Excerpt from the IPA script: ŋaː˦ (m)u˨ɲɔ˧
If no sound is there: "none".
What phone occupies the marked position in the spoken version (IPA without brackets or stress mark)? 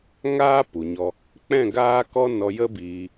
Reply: p